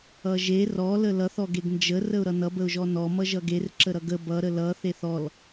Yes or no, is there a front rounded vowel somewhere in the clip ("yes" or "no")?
no